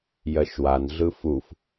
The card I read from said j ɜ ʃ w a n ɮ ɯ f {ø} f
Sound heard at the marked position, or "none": u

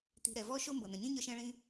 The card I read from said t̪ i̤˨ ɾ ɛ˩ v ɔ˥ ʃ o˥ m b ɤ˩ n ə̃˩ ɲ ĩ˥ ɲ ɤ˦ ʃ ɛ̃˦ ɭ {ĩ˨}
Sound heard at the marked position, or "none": ĩ˦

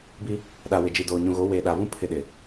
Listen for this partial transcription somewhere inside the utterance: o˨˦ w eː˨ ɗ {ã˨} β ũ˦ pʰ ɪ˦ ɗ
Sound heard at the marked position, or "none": a˨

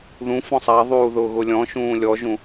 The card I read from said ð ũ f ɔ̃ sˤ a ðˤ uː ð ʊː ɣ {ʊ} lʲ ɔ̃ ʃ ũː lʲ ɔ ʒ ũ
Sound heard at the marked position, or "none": ʊ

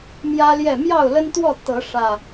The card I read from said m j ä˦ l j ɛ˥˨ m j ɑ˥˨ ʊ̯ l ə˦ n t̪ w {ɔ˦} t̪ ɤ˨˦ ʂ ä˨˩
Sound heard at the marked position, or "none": ɔ˥˨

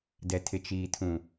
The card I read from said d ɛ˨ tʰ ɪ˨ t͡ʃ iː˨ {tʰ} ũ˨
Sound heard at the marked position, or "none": tʰ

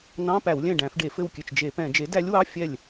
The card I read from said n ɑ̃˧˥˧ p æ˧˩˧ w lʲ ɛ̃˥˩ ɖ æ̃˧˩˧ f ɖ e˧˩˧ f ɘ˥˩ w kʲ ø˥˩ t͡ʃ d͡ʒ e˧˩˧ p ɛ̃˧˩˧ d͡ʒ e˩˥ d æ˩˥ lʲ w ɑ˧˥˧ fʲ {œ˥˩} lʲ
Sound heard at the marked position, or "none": ɛ˥˩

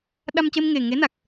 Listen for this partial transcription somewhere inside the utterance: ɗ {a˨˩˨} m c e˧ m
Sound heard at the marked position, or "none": a˧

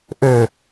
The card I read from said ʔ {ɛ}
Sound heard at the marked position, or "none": ø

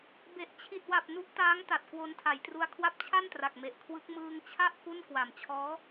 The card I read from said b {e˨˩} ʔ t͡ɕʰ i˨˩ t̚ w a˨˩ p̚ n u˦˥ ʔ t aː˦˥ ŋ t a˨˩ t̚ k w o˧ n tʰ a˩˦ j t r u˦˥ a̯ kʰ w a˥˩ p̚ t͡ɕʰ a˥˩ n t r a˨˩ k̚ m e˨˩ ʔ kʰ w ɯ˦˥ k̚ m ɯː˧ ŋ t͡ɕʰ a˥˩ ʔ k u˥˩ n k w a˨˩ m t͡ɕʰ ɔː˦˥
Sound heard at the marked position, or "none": e˨˩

